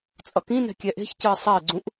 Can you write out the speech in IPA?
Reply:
t͡sʼʌkĩnɛ̤ kʲɛʔe̤çcɯɪ̯ sˤɛɪ̯ɡ͡ǀũʔ

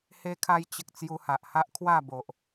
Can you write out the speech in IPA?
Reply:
he˧kʰa˧jt͡ɕə˨k̚ t͡sju˧ha˨ʔha˦ʔkʰwa˥˧ bo˨ʔ

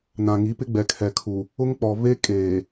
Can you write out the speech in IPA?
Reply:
nã˨ŋi˨˦pɪ˦ɡ͡bɛ˨ kʰɛ˨kʰu˨ | ʊ˦ŋk͡pɔ˨ve˦ kʼeː˨

